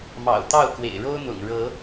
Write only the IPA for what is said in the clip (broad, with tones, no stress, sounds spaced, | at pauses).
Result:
m ɑ̰˨˩ ʊ̯ t̪ ɑ˥˨ ʊ̯ k w ḛ˨˩ ɪ̯ ɻ o˦ ʊ̯ n̪ ʊ̰˨˩ ŋ ɻ ɤ˨˦